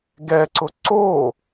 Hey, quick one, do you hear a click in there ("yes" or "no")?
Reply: yes